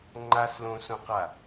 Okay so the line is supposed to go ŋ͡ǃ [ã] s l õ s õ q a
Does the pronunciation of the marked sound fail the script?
yes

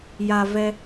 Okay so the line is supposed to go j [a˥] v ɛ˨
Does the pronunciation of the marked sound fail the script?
yes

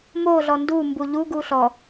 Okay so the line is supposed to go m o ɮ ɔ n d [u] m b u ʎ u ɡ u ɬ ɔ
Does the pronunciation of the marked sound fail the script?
no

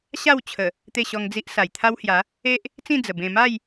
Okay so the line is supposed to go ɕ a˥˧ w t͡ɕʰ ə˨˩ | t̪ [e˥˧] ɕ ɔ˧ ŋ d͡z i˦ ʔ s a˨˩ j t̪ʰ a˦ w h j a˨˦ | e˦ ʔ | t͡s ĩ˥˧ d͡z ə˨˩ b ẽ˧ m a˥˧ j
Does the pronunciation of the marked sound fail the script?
no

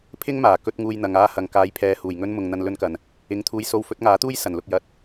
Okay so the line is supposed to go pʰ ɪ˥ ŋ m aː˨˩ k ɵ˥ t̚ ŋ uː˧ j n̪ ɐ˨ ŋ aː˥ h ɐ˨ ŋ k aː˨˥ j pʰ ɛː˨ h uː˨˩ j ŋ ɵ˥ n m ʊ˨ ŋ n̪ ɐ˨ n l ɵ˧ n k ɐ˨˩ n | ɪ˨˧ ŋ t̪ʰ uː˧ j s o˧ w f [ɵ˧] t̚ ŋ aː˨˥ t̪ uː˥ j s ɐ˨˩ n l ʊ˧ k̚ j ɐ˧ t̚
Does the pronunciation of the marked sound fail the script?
yes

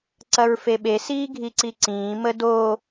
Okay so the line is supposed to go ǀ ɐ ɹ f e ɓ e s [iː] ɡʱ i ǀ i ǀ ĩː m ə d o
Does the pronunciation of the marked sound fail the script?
no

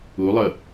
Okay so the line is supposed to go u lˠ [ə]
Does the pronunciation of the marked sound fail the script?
no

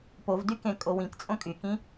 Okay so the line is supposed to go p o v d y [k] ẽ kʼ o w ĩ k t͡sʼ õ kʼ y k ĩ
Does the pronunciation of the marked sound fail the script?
no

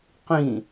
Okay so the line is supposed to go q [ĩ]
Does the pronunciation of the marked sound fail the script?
no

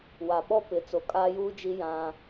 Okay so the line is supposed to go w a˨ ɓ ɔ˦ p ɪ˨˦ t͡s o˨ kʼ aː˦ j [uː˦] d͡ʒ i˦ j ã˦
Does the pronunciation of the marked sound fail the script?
no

